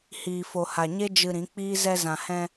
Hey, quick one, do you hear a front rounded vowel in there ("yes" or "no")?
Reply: no